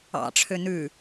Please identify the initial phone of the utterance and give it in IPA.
ɑ̰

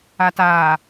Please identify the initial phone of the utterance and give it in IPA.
a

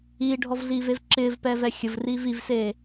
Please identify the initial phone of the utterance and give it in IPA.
iː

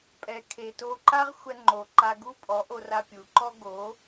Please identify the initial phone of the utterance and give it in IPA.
pʼ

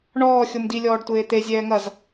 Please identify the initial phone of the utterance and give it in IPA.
ɳ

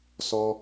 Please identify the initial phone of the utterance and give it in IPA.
s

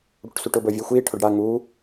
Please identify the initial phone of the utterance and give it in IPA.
ɽ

